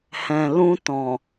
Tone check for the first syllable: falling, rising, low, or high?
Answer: low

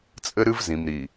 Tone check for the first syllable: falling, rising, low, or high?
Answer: high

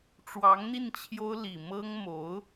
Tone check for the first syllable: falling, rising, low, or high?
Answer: rising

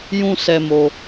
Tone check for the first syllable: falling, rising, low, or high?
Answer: high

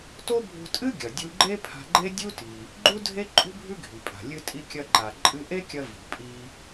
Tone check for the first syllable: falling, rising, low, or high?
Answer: high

